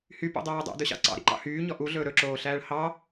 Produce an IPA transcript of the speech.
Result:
h y p o̰ dˤ æː dˤ æ̰ d ɵ ɕ ɑ̰ ǀ ɑ̰ ɾ ḭ ǃ ɑ̰ h yː ɲ ɔ ʔ u ɮ ɵː ɾ ɵ ǁ oː ɬ æː ɭ h ɑ

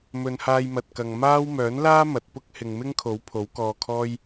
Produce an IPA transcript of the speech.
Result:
m ɵ˨˧ n h aː˧ j m ɐ˨ t̚ k ɐ˨ ŋ m aː˥ w m œː˨˥ n l aː˥ m ɐ˨ t̚ p ʊ˥ k̚ h ɪ˨ ŋ m ɪ˥ ŋ kʰ o˨˥ w pʰ o˨˥ w k ɔː˧ kʰ ɔː˥ j

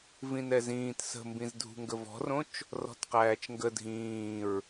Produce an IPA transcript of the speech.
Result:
v ĩ n ɛ z ĩː t s ə̤ m b ĩ z dʱ ṳ ŋ ɡ ə v ɔ̤ r õ t͡ʃ | r ɔ̤ t q æː t͡ʃ ŋ ɡ ə dʱ ĩː ɹ

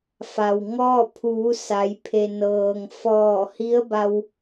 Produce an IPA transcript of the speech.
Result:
f a˩ w ŋ ɔː˥˨ pʰ uː˩˧ s a˩˧ j pʰ e˩ n ɤː˩ ŋ f ɔː˧˩ h i˧˥ ə̯ b a˧ w

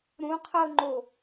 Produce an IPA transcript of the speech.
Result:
ɾ ũ qʰ ɤ ŋ͡ǃ o

